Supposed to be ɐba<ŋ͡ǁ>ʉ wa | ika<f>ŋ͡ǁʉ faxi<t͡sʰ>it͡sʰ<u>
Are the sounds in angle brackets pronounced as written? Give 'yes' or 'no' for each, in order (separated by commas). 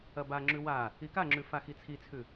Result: yes, no, yes, no